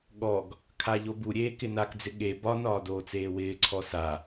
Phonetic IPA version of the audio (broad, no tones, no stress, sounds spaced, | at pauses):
ɠ ɔ ɡ | kʰ a ʎ o b u ɾʲ eː k ɪ n a k d͡z ɪ ɠ e b ɒ n ɒː d oː t͡s eː w ɪː ǀʰ ɔ s a